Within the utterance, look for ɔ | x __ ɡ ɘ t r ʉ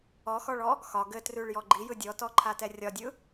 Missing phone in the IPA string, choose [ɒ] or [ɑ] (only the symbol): ɒ